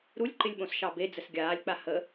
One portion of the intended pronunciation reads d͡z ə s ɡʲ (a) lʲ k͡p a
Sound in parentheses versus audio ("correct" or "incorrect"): incorrect